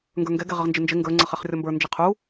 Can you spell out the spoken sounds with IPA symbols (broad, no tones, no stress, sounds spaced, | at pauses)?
ŋ ɡ ə˞ ŋ ɡ ɛ ɡ ɛ ʁ ɪ ʁ n d͡ʒ ɪ n d͡ʒ ɪ ŋ ɡ ə˞ ŋ͡ǀ ʌ χ ɛ χ rʲ ɔ m b ə˞ n d͡ʒ ɪ qʰ u